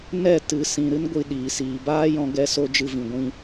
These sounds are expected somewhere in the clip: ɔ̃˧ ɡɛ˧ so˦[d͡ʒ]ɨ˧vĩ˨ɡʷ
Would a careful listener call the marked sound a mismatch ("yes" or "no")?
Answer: no